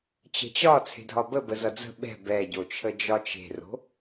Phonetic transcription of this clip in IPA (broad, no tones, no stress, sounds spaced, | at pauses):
t͡ɕ ə̤ t͡ɕ ɒ t͡sʰ e̤ dʱ ɒ b ə b ə z ʌ d͡z ə̤ ɓ ɛ̤ b ɛ ɟ o t͡ʃʰ ə d͡ʒ ɒ t͡ʃ e̤ r o̤